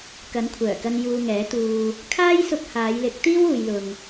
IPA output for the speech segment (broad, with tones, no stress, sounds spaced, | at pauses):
k ɐ˨˥ n kʷʰ œː˨˩ k ɐ˧ n j uː˧ ŋ ɛː˨˥ t̪ uː˧ | kʰ aː˥ j s ʊ˧ k̚ h aː˨˧ j l ɪ˨˥ k̚ t̪ iː˥ w uː˨ j l ʊ˨ ŋ